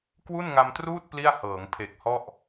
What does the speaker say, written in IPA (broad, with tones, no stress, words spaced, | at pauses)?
kwu˥˩nŋa˧mtruː˥˩t̚ pli˥˩a̯hɤː˩˦ŋ pʰe˨˩k̚hɔ˥˩ʔ